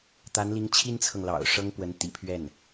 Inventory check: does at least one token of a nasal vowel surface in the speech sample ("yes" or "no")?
no